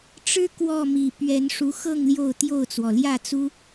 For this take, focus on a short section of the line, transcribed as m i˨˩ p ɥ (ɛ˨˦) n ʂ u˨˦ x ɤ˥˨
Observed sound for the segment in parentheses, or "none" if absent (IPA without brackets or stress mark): ɛ˨˦